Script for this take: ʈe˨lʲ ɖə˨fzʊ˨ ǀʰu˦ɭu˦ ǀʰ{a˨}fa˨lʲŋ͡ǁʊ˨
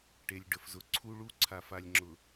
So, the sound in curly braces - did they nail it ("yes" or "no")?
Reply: yes